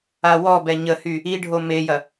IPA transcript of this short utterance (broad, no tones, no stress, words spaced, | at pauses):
awɔbɛ ɲəhy | iɖʱo mejɐ